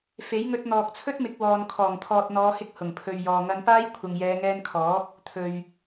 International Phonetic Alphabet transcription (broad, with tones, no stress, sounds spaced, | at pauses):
f e˨˥ j ŋ ɵ˧ t̚ n̪ ɔː˨ k̚ t͡sʰ ɵ˥ t̚ m ɪ˨˥ k̚ w ɔː˨ n kʰ ɔː˨˩ ŋ t̪ʰ ɔː˨ t̚ n̪ ɔː˨˧ h ɪ˧ k̚ h ʊ˨˩ ŋ pʰ ɵ˨ ɥ j ɔː˨ ŋ ɐ˧ n p aː˥ j kʷʰ ɐ˨ ŋ j ɛː˨˧ ŋ ɛː˧ n kʰ ɔː˨˥ k̚ | t̪ʰ ɵ˨ ɥ